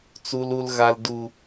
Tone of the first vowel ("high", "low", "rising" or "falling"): low